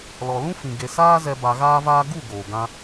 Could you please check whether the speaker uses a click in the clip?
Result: no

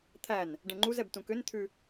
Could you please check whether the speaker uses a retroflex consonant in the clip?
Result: yes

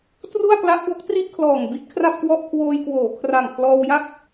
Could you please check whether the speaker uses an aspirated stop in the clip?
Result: yes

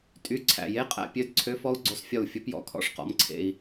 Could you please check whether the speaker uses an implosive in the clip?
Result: no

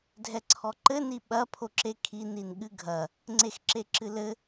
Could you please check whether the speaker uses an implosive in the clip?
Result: yes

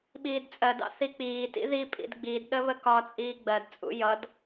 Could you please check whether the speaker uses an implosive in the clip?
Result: yes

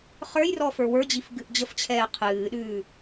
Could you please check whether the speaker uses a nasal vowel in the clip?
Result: no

